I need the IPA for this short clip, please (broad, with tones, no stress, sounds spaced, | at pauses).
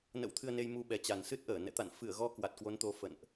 n ə̰˧˥ w t̪ʰ ɨ˧ ə̯ n e˧ j m u˧ ɓ ɛ˨˩ t͡ɕ a˨˩ n s ɨ˦˥ t̚ ʔ əː˧˩ n ɛ̰˧˨ t̪ a̰˧˨ n f ɨ˧˩ ə̯ ɣ ɔ˧ k w a˨˩ t̚ k w o˨˦ n t̪ o˨˦ f ə̰˧˨ n ʔ